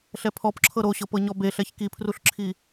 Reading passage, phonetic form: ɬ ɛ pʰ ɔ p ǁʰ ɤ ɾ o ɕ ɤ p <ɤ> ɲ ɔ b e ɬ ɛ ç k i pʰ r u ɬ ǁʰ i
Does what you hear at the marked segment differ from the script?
no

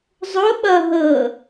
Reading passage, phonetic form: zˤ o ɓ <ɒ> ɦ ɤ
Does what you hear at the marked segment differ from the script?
yes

